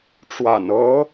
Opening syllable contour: low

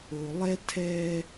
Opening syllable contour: low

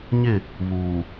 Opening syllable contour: falling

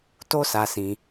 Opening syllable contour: high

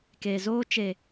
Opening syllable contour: low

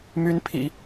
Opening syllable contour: rising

